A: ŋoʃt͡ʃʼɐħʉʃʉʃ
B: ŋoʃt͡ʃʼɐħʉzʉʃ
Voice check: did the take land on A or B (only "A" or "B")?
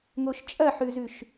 B